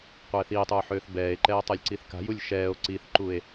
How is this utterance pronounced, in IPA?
qʷ ɛː θ iː tˤ uː ħ øː θ b ɛː e̯ ǃ ɛː tˤ əː lʲ ǀ i θ k a̤ j u lʲ ʃ ɛː o̯ ǀ i θ ǃ u e̯

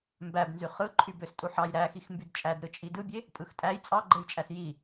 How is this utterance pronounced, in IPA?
m b æ b n z y χ ɯ ǃʰ y b ø s tʼ u ħ ɑ j ɾ æ x i x m b y d t͡ʃʼ æ d ɾ ɯ t͡ʃʼ i d ɯ bʲ e | pʼ ɯ x tʼ æ j t͡sʼ ɑ ɡ͡ǃ e j t͡ʃʼ æ s j i

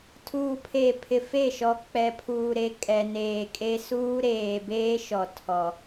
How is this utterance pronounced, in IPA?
tʰ uː˨ pʰ eː˨ pʰ ɪ˨ f e˦˨ ʃ ɔ˨ k͡p ɛ˨ pʰ uː˨ ɾ e˨ kʼ ɛ˨ n eː˨ kʼ e˦ s uː˦ ɾ eː˨ b eː˦ ʃ ɔ˨ tʰ ɔ˨

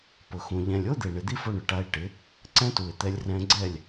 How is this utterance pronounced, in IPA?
p ʊ˨ x ũ˨ ʎ ɛ̃˨ lʲ o˦ d̪ e˨ ɳ ɪ˨ d̪ i˦ f o˧ ɳ ʊ˨ ʈ a˧ ɪ̯ ʈ ɪ˨˦ | ǀ ɛ̃˦ t u˨ ɪ̯ t̪ ɛ˧ lʲ r ɛ̃˧ ɡ͡ǀ ɛ˦˨ lʲ

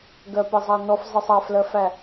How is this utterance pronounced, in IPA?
ɡ ɜ p ɪ zˤ ɑ n ɔ f zˤ ɪ sˤ ɑ f l ɜ f æ

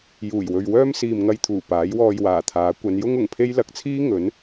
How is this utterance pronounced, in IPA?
j uː˨˩ j w ɵ˨ ɥ w œː˥ m s iː˨ m ŋ ɐ˧ j t̪ʰ uː˨˩ p aː˨˥ j w ɔː˧ j w aː˨˩ t̪ʰ aː˨˥ kʷ ɐ˨˧ n j ʊ˥ ŋ ʊ˨˩ ŋ pʰ e˥ j l ɐ˨ k̚ t͡sʰ iː˥ ŋ ɵ˨˥ n

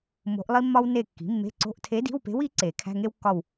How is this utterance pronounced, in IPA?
m o̤˧˥ ʔ lˠ i˥ mː ɒ˥ w n e˦˨ kː i̤˩˥ mː e̤˧˥˧ ǀ o̤˧˥˧ ʔ tʰ e˧˥ d i̤˧˥˧ w p e̤˧˥ w i˩˥ ǀ e˨˩˦ kʰ æ̤˧˥˧ ŋ e˥ w kː ɒ˦˨ w

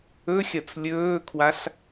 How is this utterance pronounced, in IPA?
ɵ xʲ ɐ t͡s lʲ ɵː kʰ w a ɬ

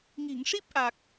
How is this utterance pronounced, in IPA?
ŋ i˨˩˨ ŋ ʂ i˦˥ p̚ ʔ a˨˩ k̚

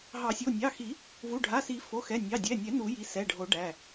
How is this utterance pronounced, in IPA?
ɦ ɑ˨˩˦ sʲ o˩˧˩ nʲ ɑ˩˧˩ x i˨˩˦ | v u˩˧˩ ɖʱ a˩˧˩ s i˨˩˦ f o˩˧˩ x ɛ˩˧˩ nʲ ɑ˩˧˩ dʲ ɛ˩˧˩ nʲ ɛ˨˩˦ n u˨˩˦ j i˩˧˩ s ɛ˩˧˩ ɖʱ o˨˩˦ ɖ æ˩˧˩

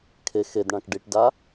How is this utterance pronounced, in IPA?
kʰ e x e d ɳ ã k ɖ i ʈ d a

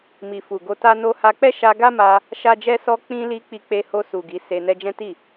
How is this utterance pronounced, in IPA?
m i˨ f u˨ ɡ o˧ t a˦ n o˧ h a˧ k͡p ɛ˦ ʃ a˧ ɡ a˦ m a˧ | ʃ a˦ d͡ʒ ɛ˦ s ɔ˧ k͡p ĩ˧ l i˧ k͡p i˧ k͡p e˧ h o˧ s u˨ ɡ i˨˦ s e˧ n ɛ˧ d͡ʒ ɛ̃˦ t i˦˨

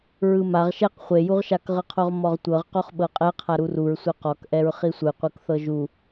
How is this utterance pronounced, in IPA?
ɹ ɯ m a ʁ ʃ ɛ q χʷ e j u ʁ ʃ a k ʁ ɯ qʰ o ʁ m ɔ ʁ tʷ ɤ ʁ q o χ ɓ ɤ qʼ ɛ qʰ a ɾ u r u ɹ sʷ e q ɔ k ʔ ɛ ɹ χ i sʷ ɯ qʷ ɯ k θ ɤ ʒ u

